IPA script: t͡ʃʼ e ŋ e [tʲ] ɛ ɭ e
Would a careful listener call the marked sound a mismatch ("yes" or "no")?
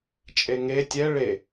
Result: no